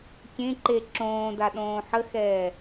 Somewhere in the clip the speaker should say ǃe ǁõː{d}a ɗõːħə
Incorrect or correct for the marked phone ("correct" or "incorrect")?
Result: correct